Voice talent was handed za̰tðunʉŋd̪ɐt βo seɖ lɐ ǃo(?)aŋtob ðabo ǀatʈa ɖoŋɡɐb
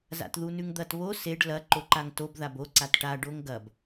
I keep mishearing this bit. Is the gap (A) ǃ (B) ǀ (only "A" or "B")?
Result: A